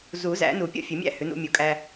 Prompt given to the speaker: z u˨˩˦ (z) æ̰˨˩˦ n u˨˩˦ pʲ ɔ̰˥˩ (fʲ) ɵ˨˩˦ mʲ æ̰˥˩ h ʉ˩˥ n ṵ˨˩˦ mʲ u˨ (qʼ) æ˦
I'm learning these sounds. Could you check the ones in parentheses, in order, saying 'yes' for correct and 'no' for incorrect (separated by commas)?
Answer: yes, yes, no